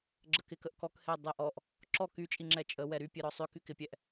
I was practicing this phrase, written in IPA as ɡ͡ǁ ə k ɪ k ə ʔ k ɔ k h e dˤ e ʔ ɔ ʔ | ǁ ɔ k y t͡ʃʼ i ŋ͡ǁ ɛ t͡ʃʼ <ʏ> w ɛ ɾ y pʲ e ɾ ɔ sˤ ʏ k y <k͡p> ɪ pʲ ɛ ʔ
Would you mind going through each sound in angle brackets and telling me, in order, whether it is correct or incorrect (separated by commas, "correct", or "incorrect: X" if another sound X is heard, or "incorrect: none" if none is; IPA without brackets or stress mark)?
incorrect: ə, incorrect: k